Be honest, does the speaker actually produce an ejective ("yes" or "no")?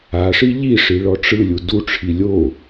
no